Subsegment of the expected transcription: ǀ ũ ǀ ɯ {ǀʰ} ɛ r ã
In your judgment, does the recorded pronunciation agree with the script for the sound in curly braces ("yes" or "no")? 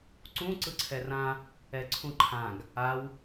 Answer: yes